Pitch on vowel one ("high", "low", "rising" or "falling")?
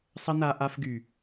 high